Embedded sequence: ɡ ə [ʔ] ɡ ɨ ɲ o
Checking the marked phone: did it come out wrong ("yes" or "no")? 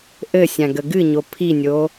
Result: yes